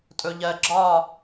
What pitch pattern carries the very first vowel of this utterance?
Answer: low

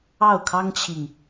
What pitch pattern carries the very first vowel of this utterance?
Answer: falling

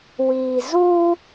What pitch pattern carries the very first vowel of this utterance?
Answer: low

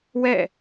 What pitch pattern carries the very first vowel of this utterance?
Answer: falling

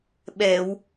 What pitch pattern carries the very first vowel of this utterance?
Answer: low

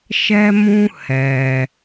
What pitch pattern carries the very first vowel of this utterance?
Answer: high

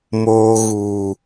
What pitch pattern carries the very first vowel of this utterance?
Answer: low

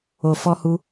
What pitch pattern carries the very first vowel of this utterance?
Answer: low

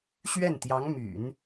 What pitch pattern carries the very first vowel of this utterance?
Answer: falling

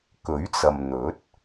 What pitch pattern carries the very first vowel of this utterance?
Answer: rising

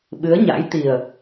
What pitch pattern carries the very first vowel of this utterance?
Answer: rising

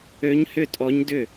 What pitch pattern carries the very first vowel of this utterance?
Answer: rising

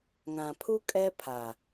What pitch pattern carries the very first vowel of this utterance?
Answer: low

